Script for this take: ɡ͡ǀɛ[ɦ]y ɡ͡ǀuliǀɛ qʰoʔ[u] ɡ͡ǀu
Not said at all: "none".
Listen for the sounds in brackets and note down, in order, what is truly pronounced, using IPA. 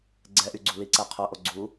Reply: ʔ, o

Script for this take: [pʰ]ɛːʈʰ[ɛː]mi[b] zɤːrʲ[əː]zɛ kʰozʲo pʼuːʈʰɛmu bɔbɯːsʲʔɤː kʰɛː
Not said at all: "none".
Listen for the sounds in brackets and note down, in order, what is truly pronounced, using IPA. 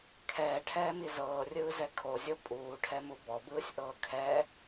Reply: kʰ, ɛː, none, ɯː

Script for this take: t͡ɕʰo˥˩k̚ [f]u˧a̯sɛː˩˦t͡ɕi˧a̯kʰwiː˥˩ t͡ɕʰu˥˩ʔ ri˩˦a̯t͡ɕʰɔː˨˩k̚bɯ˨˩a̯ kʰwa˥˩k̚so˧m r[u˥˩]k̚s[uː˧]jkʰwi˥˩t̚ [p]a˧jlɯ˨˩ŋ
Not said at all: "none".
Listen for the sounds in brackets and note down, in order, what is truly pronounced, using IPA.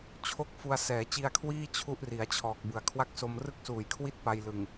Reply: f, ɯ˥˩, uː˨˩, p

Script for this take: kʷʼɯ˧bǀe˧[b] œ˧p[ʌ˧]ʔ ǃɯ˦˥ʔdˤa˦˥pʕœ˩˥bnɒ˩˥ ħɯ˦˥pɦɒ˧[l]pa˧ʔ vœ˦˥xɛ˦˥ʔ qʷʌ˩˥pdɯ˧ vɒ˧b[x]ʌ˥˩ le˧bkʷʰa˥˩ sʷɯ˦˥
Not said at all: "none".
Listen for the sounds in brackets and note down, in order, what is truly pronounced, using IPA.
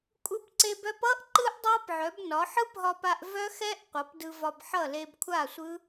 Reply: b, ʌ˦˥, none, ħ

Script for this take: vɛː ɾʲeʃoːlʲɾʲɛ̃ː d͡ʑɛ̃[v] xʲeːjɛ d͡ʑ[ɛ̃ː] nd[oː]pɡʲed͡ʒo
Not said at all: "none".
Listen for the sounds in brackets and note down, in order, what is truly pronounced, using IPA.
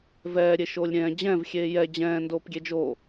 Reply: v, ɛ̃ː, oː

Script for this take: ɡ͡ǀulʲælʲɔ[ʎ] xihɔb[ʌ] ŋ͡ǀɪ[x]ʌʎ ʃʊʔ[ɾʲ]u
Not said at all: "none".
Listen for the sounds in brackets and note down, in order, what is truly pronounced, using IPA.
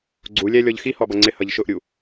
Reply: ʎ, ʌ, h, ɾʲ

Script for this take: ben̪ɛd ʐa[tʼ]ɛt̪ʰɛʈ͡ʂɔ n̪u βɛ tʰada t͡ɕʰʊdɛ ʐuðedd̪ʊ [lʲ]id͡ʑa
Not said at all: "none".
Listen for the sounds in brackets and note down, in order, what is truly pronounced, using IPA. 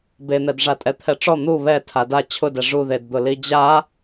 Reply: tʼ, l

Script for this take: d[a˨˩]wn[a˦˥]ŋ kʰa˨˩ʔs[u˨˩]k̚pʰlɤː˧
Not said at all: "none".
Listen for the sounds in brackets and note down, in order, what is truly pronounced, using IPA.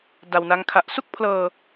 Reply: a˧, a˦˥, u˥˩

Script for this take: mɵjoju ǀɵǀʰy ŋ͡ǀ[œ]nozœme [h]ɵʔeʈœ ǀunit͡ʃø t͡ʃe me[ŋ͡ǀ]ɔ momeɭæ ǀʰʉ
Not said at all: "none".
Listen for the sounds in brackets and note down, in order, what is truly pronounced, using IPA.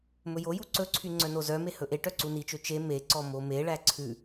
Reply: œ, h, ǀ

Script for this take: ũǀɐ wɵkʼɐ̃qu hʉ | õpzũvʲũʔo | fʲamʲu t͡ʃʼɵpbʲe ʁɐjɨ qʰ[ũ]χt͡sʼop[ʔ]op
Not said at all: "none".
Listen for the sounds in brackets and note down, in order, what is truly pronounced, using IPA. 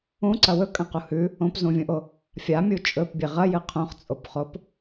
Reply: õ, χ

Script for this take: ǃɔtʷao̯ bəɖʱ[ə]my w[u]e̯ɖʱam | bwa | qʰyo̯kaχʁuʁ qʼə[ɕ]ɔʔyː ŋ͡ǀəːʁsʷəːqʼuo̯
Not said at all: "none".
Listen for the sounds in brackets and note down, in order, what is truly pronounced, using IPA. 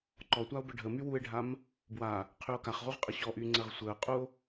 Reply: ə, u, ɕ

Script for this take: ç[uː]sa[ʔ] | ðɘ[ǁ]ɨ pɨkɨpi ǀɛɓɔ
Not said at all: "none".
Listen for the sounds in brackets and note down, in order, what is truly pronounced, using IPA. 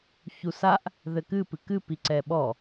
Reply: u, ʔ, k

